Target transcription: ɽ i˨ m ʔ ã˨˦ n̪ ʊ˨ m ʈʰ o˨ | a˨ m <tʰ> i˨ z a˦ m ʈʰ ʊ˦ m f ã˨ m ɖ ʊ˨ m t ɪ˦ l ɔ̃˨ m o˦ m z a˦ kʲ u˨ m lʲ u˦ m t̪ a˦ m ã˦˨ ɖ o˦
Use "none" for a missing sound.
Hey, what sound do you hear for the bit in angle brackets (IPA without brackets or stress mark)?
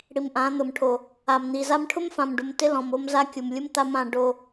n̪